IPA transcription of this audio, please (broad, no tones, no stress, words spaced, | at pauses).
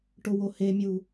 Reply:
ʈʊwohemʲu